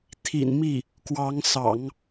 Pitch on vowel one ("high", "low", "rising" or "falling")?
low